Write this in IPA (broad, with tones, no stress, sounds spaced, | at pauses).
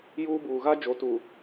j uː˦ b uː˨ ɣ a˦ d͡ʒ o˨˦ t uː˨